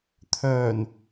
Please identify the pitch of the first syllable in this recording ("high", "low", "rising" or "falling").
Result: low